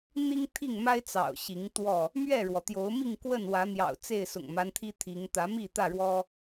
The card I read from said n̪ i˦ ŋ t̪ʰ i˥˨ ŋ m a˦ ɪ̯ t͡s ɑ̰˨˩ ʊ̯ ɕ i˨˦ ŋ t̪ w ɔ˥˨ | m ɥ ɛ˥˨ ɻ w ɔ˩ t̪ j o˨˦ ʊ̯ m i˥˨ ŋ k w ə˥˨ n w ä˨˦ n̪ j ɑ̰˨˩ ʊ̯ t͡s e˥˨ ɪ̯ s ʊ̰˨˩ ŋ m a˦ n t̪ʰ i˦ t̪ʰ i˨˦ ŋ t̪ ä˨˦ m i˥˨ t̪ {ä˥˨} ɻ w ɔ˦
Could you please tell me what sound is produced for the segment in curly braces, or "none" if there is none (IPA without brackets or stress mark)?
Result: ä˥˨